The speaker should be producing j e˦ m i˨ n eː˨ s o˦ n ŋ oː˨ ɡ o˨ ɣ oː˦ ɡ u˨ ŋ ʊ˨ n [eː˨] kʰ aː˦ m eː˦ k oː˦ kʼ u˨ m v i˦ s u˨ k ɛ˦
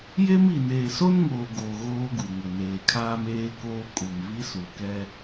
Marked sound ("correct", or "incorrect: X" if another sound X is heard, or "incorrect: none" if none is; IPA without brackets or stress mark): correct